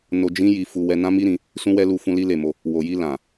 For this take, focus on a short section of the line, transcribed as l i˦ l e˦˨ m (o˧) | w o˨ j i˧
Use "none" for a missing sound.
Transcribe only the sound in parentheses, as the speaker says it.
o˧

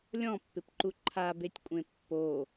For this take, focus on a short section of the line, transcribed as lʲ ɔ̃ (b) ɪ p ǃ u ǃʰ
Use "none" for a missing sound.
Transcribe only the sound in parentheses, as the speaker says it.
pː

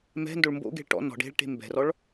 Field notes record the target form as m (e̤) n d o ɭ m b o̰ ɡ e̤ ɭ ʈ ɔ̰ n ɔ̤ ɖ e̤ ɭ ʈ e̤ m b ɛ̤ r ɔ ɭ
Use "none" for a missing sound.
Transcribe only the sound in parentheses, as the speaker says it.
ɛ̤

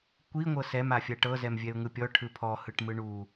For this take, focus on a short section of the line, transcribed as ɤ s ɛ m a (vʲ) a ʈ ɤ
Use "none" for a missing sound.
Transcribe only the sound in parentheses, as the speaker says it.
fʲ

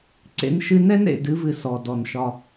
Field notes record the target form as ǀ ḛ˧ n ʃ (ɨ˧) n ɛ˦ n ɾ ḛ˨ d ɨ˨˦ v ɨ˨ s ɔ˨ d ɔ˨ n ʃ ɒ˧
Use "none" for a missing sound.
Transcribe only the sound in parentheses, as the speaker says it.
ɨ˧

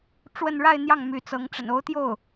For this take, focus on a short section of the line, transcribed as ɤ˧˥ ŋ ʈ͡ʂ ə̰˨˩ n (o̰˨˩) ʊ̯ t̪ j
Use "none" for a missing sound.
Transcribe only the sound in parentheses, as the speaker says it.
o˧˥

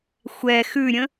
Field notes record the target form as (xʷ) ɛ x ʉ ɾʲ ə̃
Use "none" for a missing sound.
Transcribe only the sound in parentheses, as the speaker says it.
xʷ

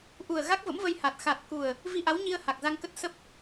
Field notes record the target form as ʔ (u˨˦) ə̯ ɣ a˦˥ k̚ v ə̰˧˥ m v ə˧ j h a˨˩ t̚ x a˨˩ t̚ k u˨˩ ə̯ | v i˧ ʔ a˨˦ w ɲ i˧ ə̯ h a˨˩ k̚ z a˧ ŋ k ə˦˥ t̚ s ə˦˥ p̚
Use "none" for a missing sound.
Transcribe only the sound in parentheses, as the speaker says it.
u˨˩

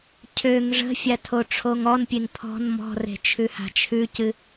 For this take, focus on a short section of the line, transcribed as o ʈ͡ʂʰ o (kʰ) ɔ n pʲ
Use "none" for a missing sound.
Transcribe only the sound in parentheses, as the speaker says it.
ŋ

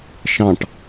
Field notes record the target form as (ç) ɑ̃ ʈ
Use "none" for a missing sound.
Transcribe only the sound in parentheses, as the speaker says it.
ʃ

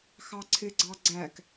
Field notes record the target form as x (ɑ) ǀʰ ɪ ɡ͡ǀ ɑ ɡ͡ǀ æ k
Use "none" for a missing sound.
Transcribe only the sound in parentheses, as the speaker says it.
ɑ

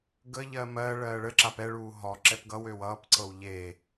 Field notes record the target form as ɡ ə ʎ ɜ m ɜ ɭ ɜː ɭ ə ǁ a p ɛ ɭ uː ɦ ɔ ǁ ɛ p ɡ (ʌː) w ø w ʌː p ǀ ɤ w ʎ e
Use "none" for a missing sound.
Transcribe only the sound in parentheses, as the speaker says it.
ʌ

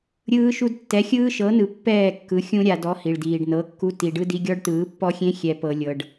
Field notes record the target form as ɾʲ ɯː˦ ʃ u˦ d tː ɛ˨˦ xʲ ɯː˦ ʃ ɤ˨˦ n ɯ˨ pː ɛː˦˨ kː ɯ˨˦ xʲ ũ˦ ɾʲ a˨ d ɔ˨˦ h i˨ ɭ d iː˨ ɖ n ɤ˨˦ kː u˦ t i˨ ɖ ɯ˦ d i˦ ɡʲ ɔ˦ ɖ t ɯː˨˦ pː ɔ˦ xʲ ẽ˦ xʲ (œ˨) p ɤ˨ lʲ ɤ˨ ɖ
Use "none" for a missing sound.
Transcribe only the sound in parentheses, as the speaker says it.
ɛ˨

